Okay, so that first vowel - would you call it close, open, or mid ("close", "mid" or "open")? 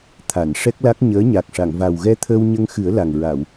open